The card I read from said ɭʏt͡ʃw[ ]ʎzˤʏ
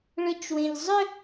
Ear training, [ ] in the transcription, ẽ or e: ẽ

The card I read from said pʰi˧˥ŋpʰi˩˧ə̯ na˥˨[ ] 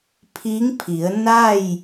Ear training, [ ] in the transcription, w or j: j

